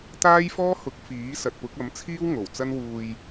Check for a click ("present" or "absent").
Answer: absent